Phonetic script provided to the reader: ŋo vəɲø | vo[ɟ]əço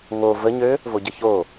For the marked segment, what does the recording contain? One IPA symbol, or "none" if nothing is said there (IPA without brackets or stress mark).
ɟ